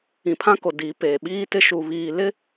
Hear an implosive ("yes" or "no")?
yes